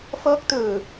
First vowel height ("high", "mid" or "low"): mid